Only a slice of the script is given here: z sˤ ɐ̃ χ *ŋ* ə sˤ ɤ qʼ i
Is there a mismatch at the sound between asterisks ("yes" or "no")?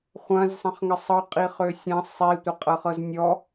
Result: no